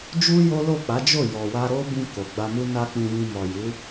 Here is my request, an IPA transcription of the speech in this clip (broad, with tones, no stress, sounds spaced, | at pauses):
d͡ʒ u˦ j o˦ l o˦˨ k͡p a˨˦ d͡ʒ o˦˨ j ɔ˨ w a˧ ɾ o˦ b ĩ˧ k o˨ ɡ͡b a˧ m u˦ n a˦ k͡p ĩ˧ j ĩ˧ m ɔ˨ j u˨˦